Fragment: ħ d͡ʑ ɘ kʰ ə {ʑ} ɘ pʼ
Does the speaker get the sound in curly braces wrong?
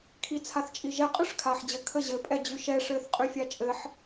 no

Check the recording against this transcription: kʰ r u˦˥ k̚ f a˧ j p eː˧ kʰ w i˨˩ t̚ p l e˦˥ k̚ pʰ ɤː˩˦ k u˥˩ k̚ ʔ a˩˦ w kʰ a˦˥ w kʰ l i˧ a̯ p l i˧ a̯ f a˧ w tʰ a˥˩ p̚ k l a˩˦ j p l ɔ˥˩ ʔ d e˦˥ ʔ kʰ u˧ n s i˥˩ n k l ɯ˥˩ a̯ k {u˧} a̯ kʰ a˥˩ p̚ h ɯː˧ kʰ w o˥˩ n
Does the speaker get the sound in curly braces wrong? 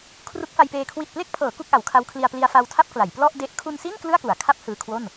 yes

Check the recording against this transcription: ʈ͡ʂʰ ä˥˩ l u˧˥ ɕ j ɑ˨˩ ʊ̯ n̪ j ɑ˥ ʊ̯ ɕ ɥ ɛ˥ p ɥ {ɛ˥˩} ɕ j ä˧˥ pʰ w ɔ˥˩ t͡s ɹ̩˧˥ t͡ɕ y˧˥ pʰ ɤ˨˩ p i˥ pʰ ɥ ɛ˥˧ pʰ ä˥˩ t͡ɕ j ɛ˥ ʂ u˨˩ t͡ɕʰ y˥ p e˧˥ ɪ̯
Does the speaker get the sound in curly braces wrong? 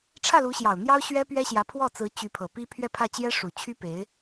yes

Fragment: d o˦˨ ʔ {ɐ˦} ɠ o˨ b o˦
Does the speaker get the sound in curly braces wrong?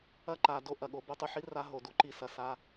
yes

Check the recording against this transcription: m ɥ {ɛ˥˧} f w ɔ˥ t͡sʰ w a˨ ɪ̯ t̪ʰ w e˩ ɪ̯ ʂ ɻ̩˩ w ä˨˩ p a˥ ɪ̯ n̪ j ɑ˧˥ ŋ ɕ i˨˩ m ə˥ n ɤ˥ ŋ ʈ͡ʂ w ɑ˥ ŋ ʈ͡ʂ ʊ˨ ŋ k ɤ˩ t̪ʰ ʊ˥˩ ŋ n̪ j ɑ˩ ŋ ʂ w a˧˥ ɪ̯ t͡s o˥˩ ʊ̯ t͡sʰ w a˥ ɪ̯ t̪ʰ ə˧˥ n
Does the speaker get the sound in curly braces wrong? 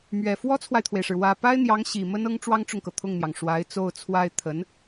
yes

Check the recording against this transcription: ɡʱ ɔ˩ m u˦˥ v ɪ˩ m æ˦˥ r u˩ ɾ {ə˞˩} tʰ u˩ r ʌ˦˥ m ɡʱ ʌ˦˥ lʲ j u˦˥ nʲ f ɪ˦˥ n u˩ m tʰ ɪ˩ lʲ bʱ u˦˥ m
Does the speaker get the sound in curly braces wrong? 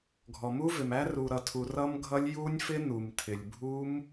yes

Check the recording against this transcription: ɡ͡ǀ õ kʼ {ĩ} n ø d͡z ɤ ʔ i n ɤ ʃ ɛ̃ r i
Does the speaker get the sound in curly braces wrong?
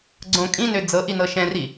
no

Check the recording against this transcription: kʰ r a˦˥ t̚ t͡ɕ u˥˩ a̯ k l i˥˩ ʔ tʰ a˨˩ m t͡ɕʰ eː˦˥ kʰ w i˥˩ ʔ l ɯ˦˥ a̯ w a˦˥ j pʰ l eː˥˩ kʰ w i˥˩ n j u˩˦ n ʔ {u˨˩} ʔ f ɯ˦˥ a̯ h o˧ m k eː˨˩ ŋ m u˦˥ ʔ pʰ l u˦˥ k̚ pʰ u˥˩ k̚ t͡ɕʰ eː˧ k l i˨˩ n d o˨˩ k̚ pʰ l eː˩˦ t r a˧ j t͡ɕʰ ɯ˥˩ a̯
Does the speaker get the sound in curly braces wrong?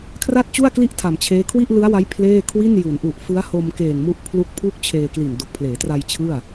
no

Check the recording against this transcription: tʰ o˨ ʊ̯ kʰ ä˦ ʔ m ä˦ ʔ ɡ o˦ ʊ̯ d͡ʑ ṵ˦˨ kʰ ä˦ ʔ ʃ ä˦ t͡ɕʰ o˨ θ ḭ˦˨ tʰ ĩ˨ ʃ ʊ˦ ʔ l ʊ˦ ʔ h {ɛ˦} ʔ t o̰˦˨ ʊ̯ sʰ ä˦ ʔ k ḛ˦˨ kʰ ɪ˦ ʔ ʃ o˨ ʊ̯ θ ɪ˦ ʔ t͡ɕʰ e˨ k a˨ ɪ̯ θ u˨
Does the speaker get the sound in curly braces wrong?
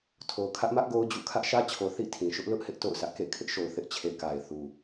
yes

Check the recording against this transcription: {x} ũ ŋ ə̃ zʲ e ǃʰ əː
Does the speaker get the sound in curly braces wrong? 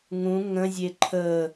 yes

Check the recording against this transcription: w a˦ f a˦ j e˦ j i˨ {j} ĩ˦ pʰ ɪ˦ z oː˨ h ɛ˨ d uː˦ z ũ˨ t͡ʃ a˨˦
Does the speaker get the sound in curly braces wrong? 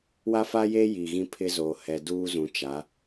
yes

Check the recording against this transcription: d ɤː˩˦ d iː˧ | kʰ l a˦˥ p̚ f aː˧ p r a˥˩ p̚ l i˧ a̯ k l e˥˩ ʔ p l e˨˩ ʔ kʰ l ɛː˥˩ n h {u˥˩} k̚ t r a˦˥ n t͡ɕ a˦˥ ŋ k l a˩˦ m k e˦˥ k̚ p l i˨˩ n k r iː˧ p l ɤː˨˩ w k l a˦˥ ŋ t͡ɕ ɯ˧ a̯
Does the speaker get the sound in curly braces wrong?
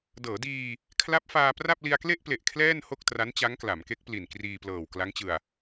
yes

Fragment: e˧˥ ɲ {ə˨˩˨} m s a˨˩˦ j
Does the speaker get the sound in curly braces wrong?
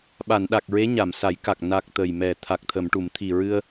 yes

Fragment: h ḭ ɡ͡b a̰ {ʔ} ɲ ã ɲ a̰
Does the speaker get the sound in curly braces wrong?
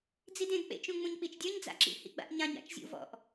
no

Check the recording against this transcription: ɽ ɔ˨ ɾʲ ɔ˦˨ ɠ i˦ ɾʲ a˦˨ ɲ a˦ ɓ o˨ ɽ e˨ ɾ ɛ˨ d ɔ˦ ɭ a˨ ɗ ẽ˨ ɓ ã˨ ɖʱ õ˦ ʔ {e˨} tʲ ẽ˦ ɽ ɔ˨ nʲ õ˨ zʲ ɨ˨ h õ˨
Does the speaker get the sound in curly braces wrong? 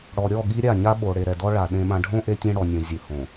yes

